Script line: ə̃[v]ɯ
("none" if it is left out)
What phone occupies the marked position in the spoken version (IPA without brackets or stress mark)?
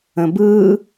b